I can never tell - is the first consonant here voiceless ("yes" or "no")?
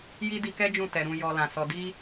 no